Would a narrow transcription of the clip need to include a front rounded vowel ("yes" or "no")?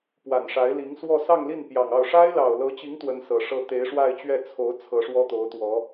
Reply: no